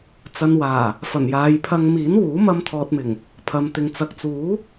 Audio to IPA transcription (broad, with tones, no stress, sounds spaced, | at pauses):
t͡s ɐ˨ n w aː˨˩ | f ɐ˨˩ n j aː˨˧ j pʰ ɐ˧ ŋ m iː˨˥ n w uː˨˥ m ɐ˧ m t̪ʰ ɔː˨ t̚ m ɪ˨˩ ŋ | pʰ ɐ˨˧ m t̪ ɪ˨˧ ŋ t͡s ɐ˨ k̚ t͡s uː˨˥